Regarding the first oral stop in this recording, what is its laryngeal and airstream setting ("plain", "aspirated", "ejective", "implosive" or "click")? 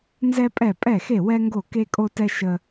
ejective